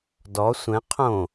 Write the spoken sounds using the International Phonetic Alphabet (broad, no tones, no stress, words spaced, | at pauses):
dɔ sʷɛ̃ qʰõ